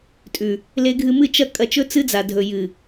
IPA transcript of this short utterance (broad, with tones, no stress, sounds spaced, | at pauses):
tʼ ʉ˨ | l e˧ ɡʱ ɨ˧ m ɨ˦˨ t͡ʃ ɐ˧ kʼ ɐ˧ t͡ʃ ɵ˦ t͡s ɨ˧ d͡z a˨ dʱ ɵ˨ j ɨ˨